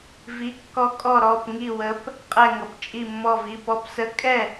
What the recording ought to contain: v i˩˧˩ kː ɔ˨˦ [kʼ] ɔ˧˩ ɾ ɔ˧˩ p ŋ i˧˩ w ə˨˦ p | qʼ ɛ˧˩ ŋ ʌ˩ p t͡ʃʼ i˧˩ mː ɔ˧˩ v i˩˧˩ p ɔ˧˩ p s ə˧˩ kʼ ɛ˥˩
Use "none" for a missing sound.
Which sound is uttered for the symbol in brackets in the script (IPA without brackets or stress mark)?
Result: kʼ